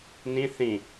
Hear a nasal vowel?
yes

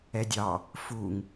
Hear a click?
no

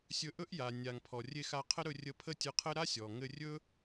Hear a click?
no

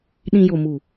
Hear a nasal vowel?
yes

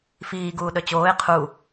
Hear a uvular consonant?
yes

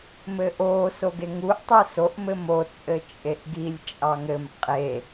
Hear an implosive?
no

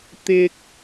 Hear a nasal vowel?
no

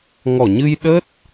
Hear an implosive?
yes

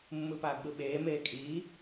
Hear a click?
no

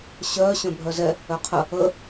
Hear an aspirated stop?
yes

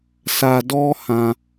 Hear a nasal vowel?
yes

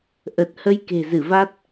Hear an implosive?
no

